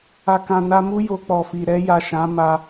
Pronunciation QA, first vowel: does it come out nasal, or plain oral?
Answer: oral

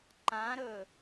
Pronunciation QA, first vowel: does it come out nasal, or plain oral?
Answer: nasal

